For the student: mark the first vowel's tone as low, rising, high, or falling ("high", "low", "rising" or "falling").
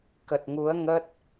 low